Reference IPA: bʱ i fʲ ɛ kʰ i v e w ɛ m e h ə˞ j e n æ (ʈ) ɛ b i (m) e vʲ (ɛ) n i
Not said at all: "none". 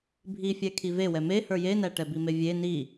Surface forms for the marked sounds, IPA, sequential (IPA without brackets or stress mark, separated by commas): ʈ, m, e